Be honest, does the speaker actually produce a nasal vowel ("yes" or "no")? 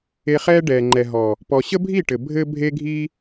no